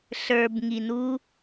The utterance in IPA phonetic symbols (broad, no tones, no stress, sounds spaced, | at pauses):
ɬ ə˞ b ŋ i n u